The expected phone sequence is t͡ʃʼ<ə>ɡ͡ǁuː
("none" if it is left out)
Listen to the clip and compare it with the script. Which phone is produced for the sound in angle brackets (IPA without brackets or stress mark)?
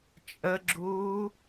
ə